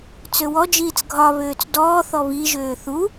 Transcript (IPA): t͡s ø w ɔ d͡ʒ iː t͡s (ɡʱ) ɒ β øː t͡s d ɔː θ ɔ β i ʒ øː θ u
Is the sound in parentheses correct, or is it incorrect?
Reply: correct